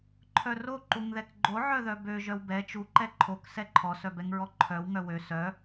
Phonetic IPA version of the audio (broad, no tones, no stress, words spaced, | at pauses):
ǃʰœro ǃuŋðɛkɡ͡ǃo ʕœðœbø ʒœwbɛ t͡ʃu ǃɛǃʰok sɛǃʰɔ sœbɛŋɹɔǃʰœw ŋœwø sœ